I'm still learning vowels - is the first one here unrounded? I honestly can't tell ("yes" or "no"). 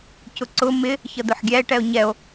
no